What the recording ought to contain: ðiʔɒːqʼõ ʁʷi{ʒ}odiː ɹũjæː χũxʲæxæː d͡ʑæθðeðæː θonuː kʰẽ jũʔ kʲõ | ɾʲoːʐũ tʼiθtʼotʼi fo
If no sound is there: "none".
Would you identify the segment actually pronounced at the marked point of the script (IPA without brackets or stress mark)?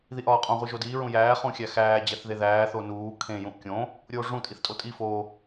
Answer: ʒ